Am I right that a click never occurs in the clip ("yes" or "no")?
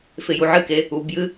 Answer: yes